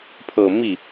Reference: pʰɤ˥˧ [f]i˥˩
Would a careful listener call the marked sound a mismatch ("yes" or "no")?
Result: yes